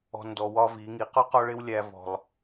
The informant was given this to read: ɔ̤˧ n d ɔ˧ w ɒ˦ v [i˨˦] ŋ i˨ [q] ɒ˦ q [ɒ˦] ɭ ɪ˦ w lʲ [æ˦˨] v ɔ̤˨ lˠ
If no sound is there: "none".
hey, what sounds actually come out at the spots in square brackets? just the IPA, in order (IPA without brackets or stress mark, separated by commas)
i˨˦, q, ɒ˦, æ˧